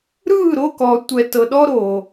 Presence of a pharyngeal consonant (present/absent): absent